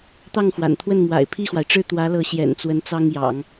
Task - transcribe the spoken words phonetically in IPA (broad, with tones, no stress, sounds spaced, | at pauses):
t̪ ɑ˥˩ ŋ x w a̰˨˩ n t̪ʰ w ə˥˩ n m w a̰˨˩ ɪ̯ pʰ i˥˩ x w a˩ ɪ̯ ʈ͡ʂ ɻ̩˥˩ t̪ w ä˧˥ l ɤ˧˥ ɕ j ɛ̰˨˩ n t͡s w ə˧˥ n t͡s ɑ˥ ŋ j ɑ̰˨˩˦ ŋ